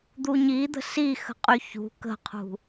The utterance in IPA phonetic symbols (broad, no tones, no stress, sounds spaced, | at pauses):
d̪ u ɲ i d̪ ə̤ s i x ə̤ qʼ y ç ṳ k ə̤ qʰ ṳ